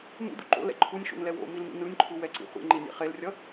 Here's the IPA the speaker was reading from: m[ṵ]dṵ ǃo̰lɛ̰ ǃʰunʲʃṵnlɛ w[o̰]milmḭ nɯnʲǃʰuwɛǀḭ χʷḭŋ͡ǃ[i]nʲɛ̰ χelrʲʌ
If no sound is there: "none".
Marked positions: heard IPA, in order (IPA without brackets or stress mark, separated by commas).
ṵ, o̰, i